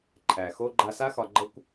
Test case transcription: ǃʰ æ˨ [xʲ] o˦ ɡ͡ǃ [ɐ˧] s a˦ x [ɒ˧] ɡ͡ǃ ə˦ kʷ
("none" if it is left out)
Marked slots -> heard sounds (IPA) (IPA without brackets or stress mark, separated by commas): x, a˧, ɒ˧